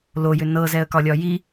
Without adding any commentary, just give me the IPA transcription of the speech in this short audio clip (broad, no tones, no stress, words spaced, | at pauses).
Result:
lojʏ nɤzɛə̯kɒlʲɒ ji